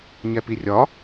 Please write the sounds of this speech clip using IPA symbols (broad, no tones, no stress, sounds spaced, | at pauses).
ɲ ɛ p i rʲ ɒ